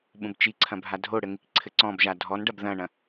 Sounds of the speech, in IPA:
ɓũbt͡ʃiǀʰɐ̃ bʱadʱoɽɘ ŋikǀʰɘǀɔ̃bʒa dʱɔnɖɐb ðɐ̃ɳɐ̃

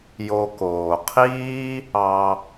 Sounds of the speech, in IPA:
jo˨koː˩qʰiː˦ | ɑ˨

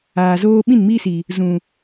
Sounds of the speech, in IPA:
aː˨zoː˦ ɓĩ˦˨n miː˦si˨ | zũ˨

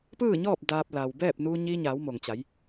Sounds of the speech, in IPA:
pɯː˥˨ɲɔː˥˨p̚ daː˧p̚la˩w bɛː˥˨p̚ nuː˧ɲiː˧ɲaː˩˧w mo˩ŋt͡ɕa˩˧j

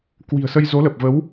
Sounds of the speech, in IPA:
kwi̤˨˩ə̯sə˧j zo˨˦lə˨˩p̚və˨˦w

